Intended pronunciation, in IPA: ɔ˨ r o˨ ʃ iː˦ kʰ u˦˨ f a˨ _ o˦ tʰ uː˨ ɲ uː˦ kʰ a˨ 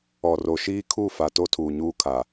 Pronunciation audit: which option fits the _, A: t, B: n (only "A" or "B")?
A